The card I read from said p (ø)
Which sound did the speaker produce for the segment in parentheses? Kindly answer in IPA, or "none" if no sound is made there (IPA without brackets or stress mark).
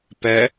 ɛ